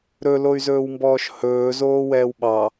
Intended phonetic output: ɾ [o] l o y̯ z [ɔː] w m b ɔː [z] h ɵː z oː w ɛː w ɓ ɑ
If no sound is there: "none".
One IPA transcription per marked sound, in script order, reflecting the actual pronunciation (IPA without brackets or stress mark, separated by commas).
ɵ, ɵː, ʃ